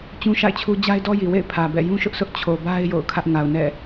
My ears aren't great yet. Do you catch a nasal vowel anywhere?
yes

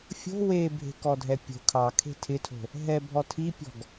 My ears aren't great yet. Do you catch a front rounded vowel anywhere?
no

